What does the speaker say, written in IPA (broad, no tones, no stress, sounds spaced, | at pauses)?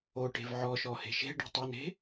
o ʈ e̤ v ʕ ɔ ʃ ɔ h e̤ ʃ e̤ ɖ i̤ tˤ o n e̤